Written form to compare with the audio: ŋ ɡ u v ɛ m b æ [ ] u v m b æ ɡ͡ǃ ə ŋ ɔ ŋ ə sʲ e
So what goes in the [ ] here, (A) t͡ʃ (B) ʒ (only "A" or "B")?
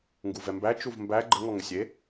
A